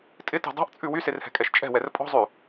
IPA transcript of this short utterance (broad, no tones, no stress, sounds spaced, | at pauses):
tʼ ɪ t e̤ dˤ ɛ̤ ʔ t͡sʼ ʉ w y s e r h ɛ̤ kʼ ɛ ʃ t͡ʃʼ ɛ̤ w ɛ r pʼ ɔ̤ zˤ ʉ